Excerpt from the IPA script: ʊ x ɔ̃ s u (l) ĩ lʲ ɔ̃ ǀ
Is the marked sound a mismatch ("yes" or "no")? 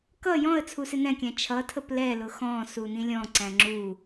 yes